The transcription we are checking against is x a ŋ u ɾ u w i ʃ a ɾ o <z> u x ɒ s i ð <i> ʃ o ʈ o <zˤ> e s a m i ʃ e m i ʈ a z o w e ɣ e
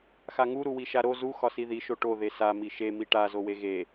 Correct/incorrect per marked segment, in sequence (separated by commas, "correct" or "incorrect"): correct, correct, incorrect